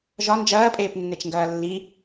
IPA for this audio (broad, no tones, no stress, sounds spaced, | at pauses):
ʒ ɒ n d͡ʒ ɐː pʼ eː p nː e t͡ʃ ŋ ɡ ɐː lː i